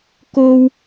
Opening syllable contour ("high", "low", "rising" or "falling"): high